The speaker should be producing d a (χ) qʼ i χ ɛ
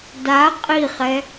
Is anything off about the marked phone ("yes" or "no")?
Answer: yes